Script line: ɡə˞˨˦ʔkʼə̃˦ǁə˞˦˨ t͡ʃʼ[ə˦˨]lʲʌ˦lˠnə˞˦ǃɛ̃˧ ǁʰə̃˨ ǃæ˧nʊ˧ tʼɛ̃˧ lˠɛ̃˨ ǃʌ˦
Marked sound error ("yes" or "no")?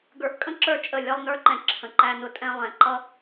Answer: no